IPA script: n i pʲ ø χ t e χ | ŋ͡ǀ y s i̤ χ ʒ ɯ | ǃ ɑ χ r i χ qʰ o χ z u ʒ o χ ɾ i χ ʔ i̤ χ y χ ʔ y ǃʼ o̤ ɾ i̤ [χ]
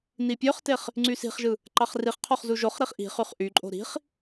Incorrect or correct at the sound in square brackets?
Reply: correct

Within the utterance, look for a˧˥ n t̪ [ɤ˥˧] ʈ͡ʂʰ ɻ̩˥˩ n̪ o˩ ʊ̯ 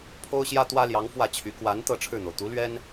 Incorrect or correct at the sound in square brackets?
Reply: correct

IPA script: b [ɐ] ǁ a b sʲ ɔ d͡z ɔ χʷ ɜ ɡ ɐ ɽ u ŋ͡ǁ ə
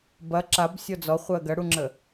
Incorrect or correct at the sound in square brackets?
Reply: correct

